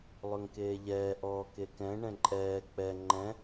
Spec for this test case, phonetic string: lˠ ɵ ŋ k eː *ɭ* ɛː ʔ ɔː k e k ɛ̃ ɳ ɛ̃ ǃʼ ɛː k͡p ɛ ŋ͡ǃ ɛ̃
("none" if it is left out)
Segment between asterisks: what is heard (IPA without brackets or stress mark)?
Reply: ʎ